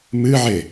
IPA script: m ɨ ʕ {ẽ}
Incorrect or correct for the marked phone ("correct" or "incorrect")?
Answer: incorrect